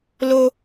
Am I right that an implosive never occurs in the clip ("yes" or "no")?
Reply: yes